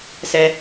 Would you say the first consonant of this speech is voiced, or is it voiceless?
voiceless